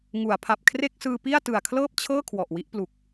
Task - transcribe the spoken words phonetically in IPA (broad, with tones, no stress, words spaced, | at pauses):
ŋu˩˦a̯pʰa˨˩p̚ kʰre˥˩k̚sɯː˧pi˥˩a̯ tɯ˨˩a̯kʰlɤː˥˩p̚t͡ɕʰɤː˥˩ kʰwɔ˨˩ʔwi˦˥ʔplu˨˩k̚